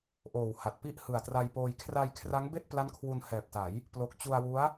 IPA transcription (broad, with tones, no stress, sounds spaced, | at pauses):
ʔ oː˨˩ w h a˨˩ t̚ p i˥˩ ʔ h ɯ˨˩ a̯ t r a˧ j p oː˧ j kʰ r a˧ j kʰ r a˦˥ ŋ b e˥˩ ʔ p l a˦˥ n kʰ w u˧ n h ɛː˨˩ p̚ t a˩˦ j | p l o˨˩ k̚ t͡ɕ u˧ a̯ w u˦˥ a̯